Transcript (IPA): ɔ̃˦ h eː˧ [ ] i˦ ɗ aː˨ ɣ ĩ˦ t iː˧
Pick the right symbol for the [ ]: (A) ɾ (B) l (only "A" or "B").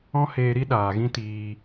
A